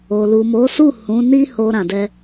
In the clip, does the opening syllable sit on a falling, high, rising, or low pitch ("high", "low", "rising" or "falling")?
low